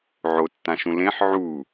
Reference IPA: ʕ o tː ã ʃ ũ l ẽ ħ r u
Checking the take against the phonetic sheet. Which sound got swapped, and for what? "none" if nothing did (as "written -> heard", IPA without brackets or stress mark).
r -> ʕ